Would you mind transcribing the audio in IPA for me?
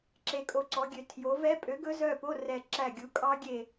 ǁ e˩˧ kʼ o˨˩ ǀ ɔ˩˧ ɡʲ ø˩˧ tʰ j o˩˧ v ɛ˦˥ pʼ ø˨˥ ɡ ɵ˦˥ z œ˦˨ p o˧˥˧ r ɛ˦˨ ǁ æ˦˨ ɡʲ u˨˥ kʼ ɑ˦˥ ɡʲ e˦˨

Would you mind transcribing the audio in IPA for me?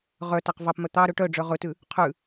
ʁ œ t æ q v ɑ p m œ t̪ ɑ ɾ ɵ ʈ œ ɖ͡ʐ œ ʁ ɵ t ʉ | qʰ ʉ

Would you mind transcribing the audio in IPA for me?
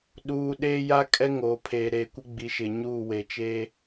ɗ uː˨ ɗ eː˦ j a˦ kʼ ɛ˦ ŋ oː˨ pʰ eː˨ ɾ eː˨ kʷ ɪ˦ ɡ͡b i˨ ʃ ɪ˨ ɲ u˦˨ w e˨ t͡ʃ e˦

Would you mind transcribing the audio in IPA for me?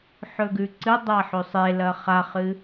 ħ ɵ ɡ ʉ ǀ ɨ dˤ a ħ ɵ sˤ e l ɐ χ a χ ɨ

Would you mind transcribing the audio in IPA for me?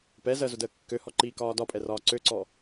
p ɛ z ɜ z ʊ d əː kː ø h ɔ ǃ iː k ɒː d ɒ pʼ ɛ r ɒː ǀ ø ǀ ɔ

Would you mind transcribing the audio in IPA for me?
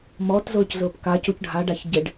m ɔ t z ʊː c z ʊː p k a c u c ɖʱ a ɖ a ç ɟ ɪ ɖ

